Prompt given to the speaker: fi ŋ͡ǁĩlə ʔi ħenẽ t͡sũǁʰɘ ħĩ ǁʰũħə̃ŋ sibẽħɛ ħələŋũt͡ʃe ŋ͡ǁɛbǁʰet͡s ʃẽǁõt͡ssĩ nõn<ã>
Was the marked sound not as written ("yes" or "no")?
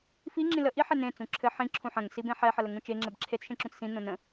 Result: yes